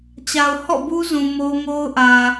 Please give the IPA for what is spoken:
t͡ɕ a˨ ʊ̯ h ɔ̰˦˨ b u˦ z ũ˨ m o˦ ŋ o˦ ʊ̯ ʔ ä˨

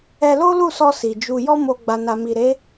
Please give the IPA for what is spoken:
ɛ˧ l o˦ l u˦˨ s ɔ˧ s i˨ d͡ʒ u˧ j ɔ˦ m o˧ ɡ͡b a˨ n a˨ m i˨ ɾ e˨˦

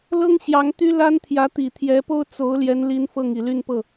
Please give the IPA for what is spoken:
l ɤ˥ ŋ ɕ j ɑ˧˥ ŋ t̪ y˥ l a˥ n t̪ʰ j ä˧˥ t̪ i˨˩ t̪ʰ j ɛ˧˥ p o˥ ʊ̯ t͡s o˧˥ ʊ̯ l j ɛ˧˥ n l i˧˥ n f ɤ˥˩ ŋ i˨˩ l y˥˧ n p ɤ˥˩

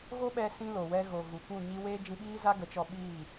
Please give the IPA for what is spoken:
ɣ o˦ ɓ ɛ˧ s ĩ˧ l o˨ w ɛ˧ ɣ o˨ ɣ u˨ kʷ ũ˦˨ ɲ i˧ w eː˦ d͡ʒ ĩ˧ ɓ iː˦ z a˦ ɡ ə˨˦ t͡ʃ ɔ˧ ɓ iː˦˨

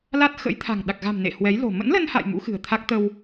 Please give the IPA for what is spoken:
l a˦˥ t̚ x ə̰˧˥ j t̪ʰ a̤˨˩ ŋ ɗ a˨˩ k̚ ɣ a̤˨˩ m n ḛ˧˨ h w ɛ˨˦ j l o̤˨˩ m ə̰˧˥ n l ə˧ n h a̰˧˨ j m ṵ˧˥ x ɨ̤˨˩ ə̯ t̪ʰ a˦˥ k̚ t̪ ə˧ w

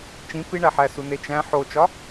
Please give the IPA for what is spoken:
t͡ʃ ĩ p i ɳ æ ħ æ s u n e t͡ʃ æ̃ ħ o t͡ʃ ɒ

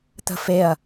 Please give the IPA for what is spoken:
t̪ ə̤ f e ɐ̯

